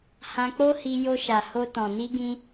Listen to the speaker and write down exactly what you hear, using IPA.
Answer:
hã˧k͡po˦hi˧ jo˧ ʃa˨ ho˧ tɔ̃˨ ni˧ɡĩ˧

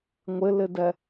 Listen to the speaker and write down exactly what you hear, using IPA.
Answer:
ŋʷɪlɪdɛ

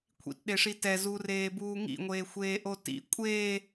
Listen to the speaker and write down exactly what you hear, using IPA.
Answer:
kʷʰḭtɗeʂi tɛzureːbuː ŋḭŋʷeːxʷeːʔo tḭ kʷʼeː

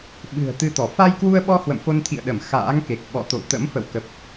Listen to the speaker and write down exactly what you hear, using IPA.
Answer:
ɓɨ̤˨˩ə̯t̪ɨ˧t̪ɔ˧˩ fa˧jkwu˧ə̯ɓɔ˧ hwə̰˧˨mfo˧nt̪ʰḭ˧˨ə̯ɗə˧˩m xa̰ː˧˥ŋke˨˩k̚ ɓɔ̰˧˨t̪o̰˧˨w t̪ə̰˧˥mfə̰˧˨wkə˨˩p̚

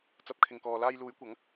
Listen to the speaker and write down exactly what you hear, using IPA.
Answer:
t͡sɐ˨˥p̚kʰɪ˨ŋkɔː˨ laː˧jluː˨˥jkʷɐ˨˥ŋ

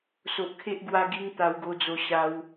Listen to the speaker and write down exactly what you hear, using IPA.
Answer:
so˨ʔkʰe˦ʔ ɡwa˧ɡi˧ŋ t̪a˧wɡo˧d͡zo˧ ɕa˧w

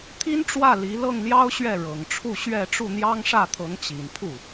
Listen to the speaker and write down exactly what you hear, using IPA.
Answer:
t̪ʰi˥nʈ͡ʂwä˥˩ li˧˥ lɤ˥˩ŋljɑ˥ʊ̯ɕɥɛ˥˩ ɻɤ˨˩ŋʈ͡ʂʰu˥˧ɕɥɛ˥˧ ʈ͡ʂu˥˩n̪jɑ˥ŋʂä˥˩t̪ʰɤ˧˥ŋ t͡ɕi˨˩npʰu˥˩

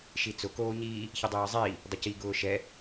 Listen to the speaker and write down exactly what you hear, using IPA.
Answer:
ʃit͡sʊ koːɲiː | çidˤiːə̯zˤiː | dˤʊci ɡʊːʃɛ

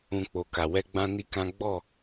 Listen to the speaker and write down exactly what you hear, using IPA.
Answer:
ũ˧ k͡po˨ka˨wɛ˧ ɡ͡bã˦ni˦kã˦ ɡ͡bɔ˦˨

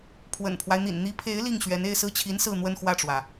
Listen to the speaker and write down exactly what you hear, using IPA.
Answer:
pʰwə̰˨˩npʰwa˦ɪ̯n̪ḭ˨˩n n̪i˧˥pʰe˧˥ɪ̯ li˥˩ŋɕɥɛ˧˥n e˥˧ɪ̯sɹ̩˥˩t͡ɕʰi˧˥n sɹ̩˥˧n̪wə˥˧nxwä˥˩ʈ͡ʂwä˩

